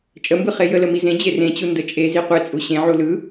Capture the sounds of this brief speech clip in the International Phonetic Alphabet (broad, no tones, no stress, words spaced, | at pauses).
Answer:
t͡ʃʼəmbɯ χejələ mizẽd͡ʑe rẽt͡ɕu ndət͡ʃʼezi qʷet͡sʼu ɕẽʕu lɯ